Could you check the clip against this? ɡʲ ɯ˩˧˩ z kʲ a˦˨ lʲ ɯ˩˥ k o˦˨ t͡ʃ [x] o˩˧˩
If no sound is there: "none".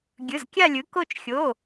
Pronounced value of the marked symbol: xʲ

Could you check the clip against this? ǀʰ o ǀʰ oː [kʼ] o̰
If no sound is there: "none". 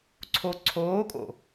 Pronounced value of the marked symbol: kʼ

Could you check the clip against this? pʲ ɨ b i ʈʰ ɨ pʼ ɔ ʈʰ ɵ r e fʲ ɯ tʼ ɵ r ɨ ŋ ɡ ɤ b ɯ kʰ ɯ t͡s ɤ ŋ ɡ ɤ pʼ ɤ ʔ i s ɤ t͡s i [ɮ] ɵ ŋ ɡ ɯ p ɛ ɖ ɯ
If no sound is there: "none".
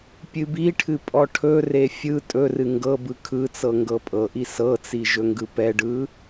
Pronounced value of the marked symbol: ʒ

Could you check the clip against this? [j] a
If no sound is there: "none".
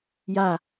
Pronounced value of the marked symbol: j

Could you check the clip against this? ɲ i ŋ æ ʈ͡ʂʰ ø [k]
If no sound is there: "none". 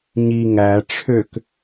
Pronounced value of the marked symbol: k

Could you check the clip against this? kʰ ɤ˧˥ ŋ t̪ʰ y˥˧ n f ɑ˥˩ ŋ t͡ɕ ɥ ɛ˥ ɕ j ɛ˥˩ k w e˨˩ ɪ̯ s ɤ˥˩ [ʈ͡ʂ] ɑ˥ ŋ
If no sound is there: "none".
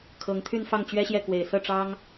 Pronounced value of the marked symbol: ʈ͡ʂ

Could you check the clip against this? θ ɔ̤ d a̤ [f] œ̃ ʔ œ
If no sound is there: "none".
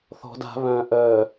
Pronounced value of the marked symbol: β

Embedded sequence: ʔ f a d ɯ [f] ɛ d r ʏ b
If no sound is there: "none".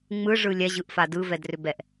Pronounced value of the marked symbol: v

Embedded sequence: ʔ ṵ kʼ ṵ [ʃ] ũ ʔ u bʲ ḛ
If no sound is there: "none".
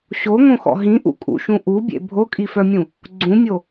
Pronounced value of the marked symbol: ʃ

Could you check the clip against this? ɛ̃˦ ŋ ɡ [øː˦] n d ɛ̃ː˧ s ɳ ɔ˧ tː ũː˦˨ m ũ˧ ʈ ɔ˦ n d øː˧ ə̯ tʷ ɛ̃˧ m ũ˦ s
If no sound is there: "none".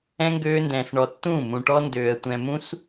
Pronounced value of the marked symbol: øː˦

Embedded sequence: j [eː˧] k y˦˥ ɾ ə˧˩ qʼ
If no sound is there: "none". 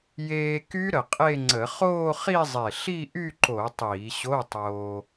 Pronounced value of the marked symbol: eː˧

